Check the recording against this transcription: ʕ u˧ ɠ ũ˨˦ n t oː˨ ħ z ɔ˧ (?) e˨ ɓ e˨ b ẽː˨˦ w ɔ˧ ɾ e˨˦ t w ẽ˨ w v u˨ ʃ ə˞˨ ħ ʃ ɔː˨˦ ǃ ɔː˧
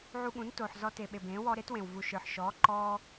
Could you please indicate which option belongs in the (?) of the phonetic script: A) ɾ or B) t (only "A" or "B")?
B